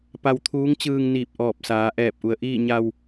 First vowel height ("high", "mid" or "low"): low